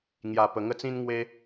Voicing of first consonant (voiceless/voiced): voiced